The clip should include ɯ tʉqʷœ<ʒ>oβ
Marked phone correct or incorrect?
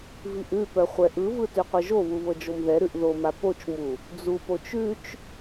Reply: correct